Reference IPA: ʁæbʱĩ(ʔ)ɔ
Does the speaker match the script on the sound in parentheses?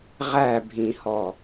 no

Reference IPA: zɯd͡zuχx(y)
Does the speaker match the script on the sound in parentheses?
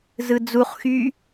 yes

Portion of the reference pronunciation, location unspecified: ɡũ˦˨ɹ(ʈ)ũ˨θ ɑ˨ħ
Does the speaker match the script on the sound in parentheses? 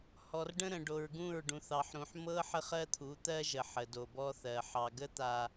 no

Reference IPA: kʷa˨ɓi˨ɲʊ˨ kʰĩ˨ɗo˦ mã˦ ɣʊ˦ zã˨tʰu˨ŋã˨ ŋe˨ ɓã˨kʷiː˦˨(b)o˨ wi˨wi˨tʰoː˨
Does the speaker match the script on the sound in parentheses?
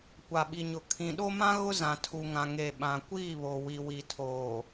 no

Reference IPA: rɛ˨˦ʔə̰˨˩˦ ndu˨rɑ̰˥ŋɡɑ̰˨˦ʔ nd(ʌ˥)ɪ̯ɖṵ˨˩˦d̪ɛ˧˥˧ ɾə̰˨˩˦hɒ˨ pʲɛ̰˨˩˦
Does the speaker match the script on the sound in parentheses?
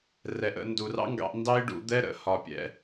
no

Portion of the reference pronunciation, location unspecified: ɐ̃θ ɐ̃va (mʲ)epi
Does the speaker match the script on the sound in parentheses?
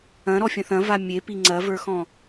yes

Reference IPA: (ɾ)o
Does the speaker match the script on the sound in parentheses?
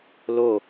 no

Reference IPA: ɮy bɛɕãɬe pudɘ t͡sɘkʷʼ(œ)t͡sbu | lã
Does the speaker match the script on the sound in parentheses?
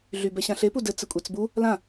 no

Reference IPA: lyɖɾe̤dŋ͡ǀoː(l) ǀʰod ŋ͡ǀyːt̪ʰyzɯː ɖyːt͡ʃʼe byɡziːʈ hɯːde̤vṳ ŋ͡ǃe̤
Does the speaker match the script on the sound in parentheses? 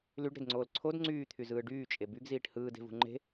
yes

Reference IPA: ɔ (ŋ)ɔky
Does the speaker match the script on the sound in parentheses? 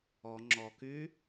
no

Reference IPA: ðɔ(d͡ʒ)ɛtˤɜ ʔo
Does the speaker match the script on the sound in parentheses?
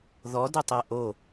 no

